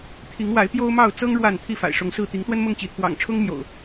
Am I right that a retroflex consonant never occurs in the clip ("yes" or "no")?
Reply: no